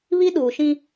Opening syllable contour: high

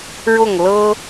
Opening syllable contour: falling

